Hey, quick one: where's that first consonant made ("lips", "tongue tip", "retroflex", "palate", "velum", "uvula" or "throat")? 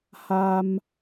throat